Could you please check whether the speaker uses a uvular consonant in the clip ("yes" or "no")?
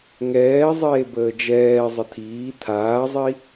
no